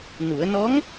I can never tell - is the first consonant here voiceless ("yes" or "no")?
no